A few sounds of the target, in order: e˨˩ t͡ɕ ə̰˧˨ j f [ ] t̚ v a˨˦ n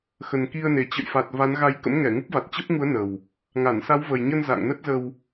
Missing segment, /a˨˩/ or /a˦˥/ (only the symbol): a˨˩